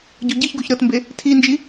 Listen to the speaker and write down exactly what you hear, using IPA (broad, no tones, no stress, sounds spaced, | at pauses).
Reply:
ɟ o ɟ i ç ɡ o ç ɾ ɤ t m b e | tʰ i n d͡ʒ i